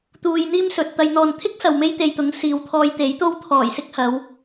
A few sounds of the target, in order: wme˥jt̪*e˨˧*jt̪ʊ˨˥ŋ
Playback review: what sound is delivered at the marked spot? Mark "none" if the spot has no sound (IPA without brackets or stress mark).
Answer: e˧